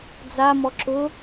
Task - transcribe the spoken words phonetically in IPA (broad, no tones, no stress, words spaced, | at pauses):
d͡zamɔ ǁʊ